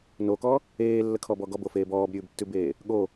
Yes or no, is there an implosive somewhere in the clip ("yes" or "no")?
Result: yes